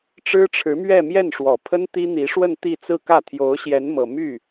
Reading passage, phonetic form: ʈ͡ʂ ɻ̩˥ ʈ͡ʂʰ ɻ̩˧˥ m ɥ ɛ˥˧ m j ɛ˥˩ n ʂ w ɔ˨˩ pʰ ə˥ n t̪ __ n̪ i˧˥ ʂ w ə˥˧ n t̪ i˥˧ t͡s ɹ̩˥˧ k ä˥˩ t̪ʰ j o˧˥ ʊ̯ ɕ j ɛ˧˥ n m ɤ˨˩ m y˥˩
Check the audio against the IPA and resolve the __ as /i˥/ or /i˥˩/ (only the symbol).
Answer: i˥